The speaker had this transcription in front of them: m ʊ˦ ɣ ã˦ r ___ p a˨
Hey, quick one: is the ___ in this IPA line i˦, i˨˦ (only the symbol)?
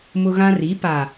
i˨˦